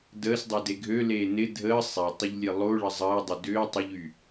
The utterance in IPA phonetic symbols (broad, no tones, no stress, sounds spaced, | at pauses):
d əː s dˤ e d e ɡʱ ø l eː n ɪ dʱ əː sˤ e tˤ ʏ ʎ lʲ e lˠ o ɭ ə zˤ əː dˤ ʊ d ʏː tˤ ʊ ʎ y